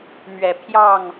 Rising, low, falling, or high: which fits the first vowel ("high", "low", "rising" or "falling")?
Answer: low